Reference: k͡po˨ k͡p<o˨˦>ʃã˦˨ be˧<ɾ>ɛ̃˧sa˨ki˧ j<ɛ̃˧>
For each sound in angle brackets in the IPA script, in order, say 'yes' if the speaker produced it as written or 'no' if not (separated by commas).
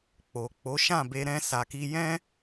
yes, yes, yes